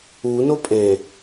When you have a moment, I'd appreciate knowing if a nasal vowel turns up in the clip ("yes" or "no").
yes